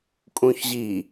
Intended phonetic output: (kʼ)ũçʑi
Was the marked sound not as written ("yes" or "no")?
no